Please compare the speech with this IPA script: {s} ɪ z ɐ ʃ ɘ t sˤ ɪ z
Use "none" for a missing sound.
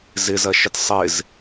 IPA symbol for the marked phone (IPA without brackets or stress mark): z